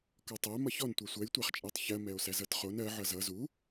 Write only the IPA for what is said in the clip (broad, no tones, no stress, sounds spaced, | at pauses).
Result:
k ɔ tˤ æ m ʌ ç ɔ n tʷ ɛ sʷ ɜ j tʷ æ χ t͡ʃʼ æ tˤ ç ɜ m ɛ o̯ s æ z ʌ t χ o n ɜ ʕ ʌ z ʌ z u